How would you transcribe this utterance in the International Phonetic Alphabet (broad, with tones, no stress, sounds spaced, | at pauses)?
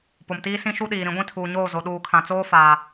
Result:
p o˨ m t iː˦ s ĩ˦ ʃ u˦ ɗ iː˨ ɾ ĩ˨˦ ɡʷ ĩ˦ tʰ uː˨ ɲ oː˦˨ z o˨ ɗ uː˨ kʰ ã˨ t͡s oː˦ f aː˨